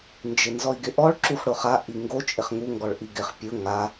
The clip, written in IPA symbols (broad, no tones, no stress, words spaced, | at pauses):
nd͡ʒɪnzɔi̯ɡɪʔɔɭ ǁuxɽʊχa ʔiŋɡo t͡ʃʼɪχŋu ŋɡɔɭʔiɡɪχ pʲʊ ŋa